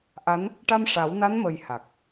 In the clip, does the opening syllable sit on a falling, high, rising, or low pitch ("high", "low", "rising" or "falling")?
rising